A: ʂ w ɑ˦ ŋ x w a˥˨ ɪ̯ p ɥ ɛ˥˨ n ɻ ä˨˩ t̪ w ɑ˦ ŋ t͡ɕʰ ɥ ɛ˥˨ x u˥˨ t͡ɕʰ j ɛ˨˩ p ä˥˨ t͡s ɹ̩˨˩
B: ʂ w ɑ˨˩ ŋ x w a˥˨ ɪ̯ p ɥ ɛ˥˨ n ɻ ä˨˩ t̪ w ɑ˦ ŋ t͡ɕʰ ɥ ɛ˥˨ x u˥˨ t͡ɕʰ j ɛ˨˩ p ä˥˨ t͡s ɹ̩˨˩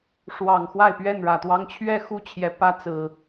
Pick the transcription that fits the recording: B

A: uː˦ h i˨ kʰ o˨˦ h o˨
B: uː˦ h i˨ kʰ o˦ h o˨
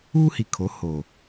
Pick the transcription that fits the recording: A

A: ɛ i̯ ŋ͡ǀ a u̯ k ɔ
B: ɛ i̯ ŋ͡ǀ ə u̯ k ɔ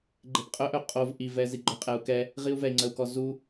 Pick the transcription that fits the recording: B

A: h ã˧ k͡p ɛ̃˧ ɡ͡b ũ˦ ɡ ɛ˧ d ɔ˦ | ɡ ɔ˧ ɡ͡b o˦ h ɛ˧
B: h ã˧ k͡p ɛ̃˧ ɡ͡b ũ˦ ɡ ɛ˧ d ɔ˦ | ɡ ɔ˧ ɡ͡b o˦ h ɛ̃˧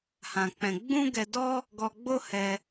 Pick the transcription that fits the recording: A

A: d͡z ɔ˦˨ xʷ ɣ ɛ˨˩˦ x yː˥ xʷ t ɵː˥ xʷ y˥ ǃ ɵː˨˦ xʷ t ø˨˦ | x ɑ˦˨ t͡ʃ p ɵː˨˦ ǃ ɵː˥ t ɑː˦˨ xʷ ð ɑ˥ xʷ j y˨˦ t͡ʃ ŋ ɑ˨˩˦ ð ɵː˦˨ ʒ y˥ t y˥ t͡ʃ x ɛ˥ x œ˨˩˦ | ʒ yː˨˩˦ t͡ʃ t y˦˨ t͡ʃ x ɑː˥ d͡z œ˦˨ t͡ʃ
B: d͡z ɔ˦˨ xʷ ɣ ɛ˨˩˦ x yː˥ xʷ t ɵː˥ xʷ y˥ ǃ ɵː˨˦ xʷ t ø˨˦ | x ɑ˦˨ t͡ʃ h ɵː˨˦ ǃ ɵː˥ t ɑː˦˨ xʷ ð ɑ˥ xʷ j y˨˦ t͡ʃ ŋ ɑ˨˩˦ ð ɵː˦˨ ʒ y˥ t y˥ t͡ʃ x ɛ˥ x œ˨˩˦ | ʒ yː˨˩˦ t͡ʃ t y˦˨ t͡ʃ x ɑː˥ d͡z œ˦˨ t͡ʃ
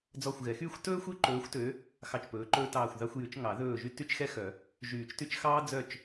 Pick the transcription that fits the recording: A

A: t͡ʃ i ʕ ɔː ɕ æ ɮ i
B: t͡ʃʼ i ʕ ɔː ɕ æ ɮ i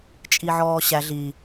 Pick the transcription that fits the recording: B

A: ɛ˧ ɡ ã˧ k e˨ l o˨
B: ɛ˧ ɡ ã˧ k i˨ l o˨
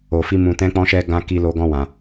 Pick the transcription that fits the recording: B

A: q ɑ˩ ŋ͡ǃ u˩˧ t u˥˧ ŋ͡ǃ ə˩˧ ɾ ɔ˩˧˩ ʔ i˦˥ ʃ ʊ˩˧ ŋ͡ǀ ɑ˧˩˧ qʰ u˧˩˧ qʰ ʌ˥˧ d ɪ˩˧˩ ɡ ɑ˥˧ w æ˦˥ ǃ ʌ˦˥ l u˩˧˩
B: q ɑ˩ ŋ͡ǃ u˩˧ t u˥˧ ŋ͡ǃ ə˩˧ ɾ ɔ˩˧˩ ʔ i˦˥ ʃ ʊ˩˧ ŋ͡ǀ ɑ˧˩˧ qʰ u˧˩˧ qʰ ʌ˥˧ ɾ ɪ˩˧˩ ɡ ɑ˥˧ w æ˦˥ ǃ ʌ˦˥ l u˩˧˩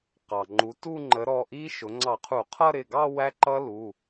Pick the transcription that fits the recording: B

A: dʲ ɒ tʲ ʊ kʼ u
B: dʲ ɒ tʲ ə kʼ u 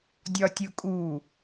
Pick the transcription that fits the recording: A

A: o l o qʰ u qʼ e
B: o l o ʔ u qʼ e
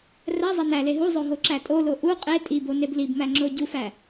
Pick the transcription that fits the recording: B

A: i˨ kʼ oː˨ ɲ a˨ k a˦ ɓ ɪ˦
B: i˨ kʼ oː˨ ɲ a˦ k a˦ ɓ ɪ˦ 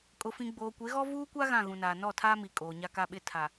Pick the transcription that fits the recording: B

